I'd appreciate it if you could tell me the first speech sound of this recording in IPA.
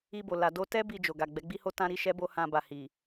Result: i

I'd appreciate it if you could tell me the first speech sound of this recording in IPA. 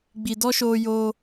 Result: ɡ͡b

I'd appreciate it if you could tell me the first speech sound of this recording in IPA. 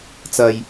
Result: t͡s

